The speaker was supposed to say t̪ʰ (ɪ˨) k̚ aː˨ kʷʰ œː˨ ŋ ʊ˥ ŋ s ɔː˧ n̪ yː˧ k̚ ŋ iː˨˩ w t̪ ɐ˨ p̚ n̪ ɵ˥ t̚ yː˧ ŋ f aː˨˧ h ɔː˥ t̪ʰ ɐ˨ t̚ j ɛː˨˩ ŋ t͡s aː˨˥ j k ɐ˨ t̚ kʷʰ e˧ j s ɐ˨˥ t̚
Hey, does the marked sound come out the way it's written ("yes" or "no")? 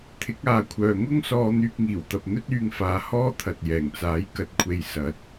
no